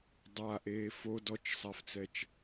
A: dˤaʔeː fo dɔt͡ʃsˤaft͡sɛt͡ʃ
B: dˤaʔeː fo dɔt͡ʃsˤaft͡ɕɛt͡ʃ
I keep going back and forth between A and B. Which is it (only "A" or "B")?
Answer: A